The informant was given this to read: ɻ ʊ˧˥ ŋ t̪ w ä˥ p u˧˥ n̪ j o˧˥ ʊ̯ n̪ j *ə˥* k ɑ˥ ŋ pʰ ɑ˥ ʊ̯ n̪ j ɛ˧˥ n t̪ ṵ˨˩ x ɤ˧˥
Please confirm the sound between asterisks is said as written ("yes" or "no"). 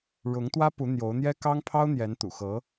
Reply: no